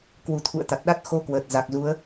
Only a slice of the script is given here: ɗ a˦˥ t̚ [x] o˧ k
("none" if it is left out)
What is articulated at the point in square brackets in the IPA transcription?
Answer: x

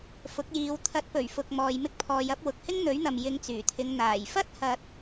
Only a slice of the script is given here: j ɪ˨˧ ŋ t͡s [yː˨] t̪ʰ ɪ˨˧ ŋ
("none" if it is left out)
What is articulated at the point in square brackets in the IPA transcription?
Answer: yː˨˩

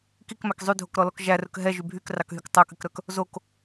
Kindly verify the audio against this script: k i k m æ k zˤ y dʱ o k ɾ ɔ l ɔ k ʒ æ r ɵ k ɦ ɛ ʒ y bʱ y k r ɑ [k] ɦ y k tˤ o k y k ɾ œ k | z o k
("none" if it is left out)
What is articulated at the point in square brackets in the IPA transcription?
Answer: k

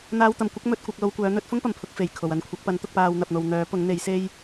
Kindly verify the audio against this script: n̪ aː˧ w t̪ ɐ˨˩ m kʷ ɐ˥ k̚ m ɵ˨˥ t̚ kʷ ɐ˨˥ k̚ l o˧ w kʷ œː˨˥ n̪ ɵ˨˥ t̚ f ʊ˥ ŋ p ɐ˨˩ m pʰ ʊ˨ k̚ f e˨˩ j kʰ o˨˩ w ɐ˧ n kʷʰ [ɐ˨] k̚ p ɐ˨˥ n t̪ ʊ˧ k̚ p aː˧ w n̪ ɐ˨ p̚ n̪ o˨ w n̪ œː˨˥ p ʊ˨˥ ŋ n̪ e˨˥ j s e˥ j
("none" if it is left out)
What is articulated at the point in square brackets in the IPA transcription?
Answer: ɐ˨˥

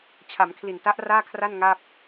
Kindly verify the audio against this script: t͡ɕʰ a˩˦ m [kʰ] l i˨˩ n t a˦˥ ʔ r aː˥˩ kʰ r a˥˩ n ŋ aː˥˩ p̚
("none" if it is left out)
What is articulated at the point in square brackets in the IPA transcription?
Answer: kʰ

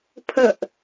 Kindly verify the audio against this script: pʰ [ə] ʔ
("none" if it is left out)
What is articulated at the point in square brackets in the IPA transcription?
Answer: ə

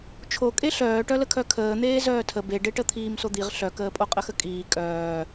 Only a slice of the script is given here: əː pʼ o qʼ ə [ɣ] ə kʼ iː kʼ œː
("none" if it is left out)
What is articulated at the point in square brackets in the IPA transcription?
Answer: x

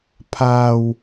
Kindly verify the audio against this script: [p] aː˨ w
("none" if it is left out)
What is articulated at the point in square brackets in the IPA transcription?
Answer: pʰ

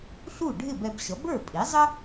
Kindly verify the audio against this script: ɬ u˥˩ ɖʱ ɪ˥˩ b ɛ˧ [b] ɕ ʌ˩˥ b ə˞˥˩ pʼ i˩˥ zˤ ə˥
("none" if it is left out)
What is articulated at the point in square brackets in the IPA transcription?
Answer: b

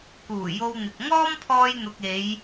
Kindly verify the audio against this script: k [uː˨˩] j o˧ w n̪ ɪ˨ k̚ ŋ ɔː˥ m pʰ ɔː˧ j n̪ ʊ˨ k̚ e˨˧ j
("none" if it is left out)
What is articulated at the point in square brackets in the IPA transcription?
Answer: uː˨˩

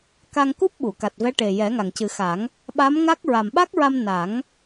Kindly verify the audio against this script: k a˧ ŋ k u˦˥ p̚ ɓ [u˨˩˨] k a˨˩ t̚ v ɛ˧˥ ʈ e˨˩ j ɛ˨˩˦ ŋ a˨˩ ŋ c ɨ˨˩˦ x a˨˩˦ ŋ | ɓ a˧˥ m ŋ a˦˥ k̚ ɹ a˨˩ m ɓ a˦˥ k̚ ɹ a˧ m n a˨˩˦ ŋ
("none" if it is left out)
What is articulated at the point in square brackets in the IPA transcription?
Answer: u˨˩˨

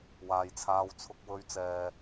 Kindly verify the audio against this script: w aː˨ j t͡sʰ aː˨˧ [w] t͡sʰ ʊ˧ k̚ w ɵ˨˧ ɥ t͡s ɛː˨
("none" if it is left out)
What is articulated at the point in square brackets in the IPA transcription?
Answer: w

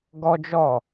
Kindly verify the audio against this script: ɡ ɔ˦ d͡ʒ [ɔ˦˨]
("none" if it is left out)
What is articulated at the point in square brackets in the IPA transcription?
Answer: ɔ˦˨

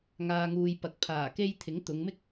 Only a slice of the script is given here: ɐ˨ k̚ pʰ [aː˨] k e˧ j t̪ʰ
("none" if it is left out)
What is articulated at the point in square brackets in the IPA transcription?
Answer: aː˨˩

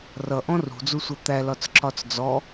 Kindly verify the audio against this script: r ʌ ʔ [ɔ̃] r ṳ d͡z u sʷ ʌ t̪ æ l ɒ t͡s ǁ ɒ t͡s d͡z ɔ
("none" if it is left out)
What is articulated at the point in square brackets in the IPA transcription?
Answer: ɔ̃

